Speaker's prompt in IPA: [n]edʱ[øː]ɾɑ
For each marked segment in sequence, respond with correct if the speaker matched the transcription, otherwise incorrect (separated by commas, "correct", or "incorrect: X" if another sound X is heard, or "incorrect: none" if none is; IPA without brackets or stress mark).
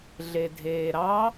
incorrect: ɮ, incorrect: eː